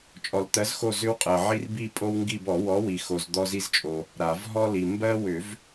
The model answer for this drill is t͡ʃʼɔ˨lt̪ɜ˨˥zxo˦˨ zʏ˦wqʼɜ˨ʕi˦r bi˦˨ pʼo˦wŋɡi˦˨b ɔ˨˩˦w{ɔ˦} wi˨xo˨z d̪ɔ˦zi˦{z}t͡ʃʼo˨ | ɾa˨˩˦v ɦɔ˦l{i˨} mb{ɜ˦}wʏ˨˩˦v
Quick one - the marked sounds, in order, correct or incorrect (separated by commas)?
incorrect, correct, correct, correct